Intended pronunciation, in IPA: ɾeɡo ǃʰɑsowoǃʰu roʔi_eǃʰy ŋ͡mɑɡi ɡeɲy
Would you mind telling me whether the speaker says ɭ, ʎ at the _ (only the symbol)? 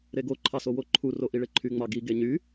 ɭ